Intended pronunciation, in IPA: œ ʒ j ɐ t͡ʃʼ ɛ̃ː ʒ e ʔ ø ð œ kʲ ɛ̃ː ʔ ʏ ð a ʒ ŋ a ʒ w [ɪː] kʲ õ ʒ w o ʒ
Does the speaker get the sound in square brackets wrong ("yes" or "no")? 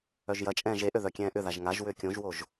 yes